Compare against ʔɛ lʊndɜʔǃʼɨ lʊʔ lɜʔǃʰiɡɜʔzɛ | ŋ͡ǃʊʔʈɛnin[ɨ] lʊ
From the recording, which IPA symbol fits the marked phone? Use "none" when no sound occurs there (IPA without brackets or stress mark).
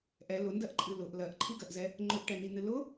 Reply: ɨ